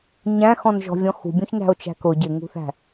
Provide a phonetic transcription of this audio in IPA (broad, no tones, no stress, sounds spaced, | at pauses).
ɲ æ̃ x ɔ̃ n ʒ ɔ̤ vʲ ɔ̃ x ṳ bʲ ũ ç n æ̤ o̯ t͡ʃ æ̤ k ʊ ɟ ɪ ŋ ṳ θ æ̤